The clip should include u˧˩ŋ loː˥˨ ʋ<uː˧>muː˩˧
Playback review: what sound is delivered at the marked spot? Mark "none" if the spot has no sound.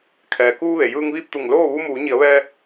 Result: u˧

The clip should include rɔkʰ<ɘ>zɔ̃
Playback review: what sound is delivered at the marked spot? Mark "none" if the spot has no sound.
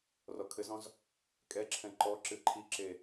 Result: ɘ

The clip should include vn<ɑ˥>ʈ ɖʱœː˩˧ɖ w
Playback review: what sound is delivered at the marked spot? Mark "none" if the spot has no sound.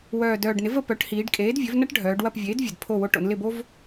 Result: ɐ˥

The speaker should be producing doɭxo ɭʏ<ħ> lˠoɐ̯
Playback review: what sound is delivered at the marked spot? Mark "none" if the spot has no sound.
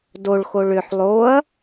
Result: ħ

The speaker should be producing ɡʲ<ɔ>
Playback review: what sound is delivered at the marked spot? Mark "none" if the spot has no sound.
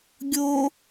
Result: o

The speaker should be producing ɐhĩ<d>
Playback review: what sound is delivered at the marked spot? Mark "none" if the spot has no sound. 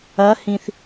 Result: θ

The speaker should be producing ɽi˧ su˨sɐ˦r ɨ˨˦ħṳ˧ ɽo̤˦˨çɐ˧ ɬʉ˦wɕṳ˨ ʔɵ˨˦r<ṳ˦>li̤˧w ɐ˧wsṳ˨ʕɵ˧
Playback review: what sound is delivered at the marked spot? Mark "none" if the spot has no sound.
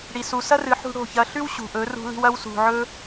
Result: ṳ˧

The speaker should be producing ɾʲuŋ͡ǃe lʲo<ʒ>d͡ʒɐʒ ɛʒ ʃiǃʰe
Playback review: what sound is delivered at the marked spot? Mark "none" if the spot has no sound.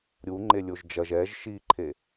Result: ʒ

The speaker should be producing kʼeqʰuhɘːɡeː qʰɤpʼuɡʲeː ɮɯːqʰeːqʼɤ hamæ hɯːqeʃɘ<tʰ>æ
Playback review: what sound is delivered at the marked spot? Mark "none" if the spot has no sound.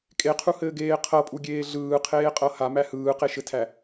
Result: tʰ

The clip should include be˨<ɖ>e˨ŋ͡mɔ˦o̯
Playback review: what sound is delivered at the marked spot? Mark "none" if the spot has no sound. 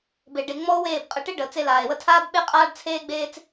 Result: ɖ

